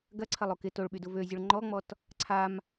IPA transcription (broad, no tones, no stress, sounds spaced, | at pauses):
ɡ ɐ ǀʰ ɐ lˠ o k ɪ t o ɭ ɓ y d ʊ v ø zʲ ʊ ɭ ŋ͡ǃ ɔ ŋ͡m ɔ t | ǀʰ a m